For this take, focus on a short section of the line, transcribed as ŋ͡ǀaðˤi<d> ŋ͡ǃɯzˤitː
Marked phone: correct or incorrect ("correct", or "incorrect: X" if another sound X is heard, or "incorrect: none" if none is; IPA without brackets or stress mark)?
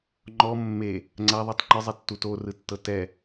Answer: incorrect: tˤ